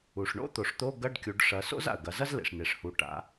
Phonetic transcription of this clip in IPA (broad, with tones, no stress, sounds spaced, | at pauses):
u˩ ʂ ɳ o̰˥ t̪ o˩˧ ʂ t̪ o˧˥˧ ɡ ɐ˧˥˧ ɖ kʲ u˩˧ ɖ ʂ ɐ˩˧ s o̰˥ z a̰˩ ə̯ ɡ ɐ˩˧ z ɐ˥ z l ḛ˩ ʂ n e˩ ʂ h u˩˧ ʈ a̰˩˧